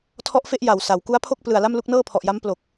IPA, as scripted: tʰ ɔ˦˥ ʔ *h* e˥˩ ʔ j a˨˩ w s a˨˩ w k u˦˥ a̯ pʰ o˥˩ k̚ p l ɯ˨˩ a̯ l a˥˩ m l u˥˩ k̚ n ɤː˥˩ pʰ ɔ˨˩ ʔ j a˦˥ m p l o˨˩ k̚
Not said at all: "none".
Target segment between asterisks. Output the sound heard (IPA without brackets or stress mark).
f